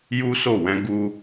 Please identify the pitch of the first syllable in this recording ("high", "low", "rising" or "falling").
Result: high